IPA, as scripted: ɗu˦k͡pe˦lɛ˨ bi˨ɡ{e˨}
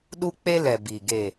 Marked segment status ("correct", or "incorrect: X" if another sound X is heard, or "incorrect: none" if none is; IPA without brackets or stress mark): correct